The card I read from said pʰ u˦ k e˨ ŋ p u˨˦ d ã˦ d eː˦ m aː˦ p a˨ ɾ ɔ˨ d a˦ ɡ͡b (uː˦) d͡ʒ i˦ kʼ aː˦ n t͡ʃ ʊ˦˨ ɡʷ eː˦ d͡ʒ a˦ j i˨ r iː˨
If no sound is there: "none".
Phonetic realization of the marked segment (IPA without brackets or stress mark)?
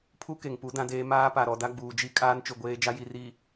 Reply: uː˨